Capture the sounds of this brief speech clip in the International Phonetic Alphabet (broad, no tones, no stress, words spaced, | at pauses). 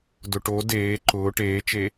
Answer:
dʊʈo deː ǃʊː ʈeːt͡ʃe